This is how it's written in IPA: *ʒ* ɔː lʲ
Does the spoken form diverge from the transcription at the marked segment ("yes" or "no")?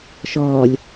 yes